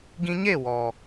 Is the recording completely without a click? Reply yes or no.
yes